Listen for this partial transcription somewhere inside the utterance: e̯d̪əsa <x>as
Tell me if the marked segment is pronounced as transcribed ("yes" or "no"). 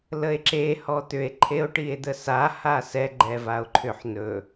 no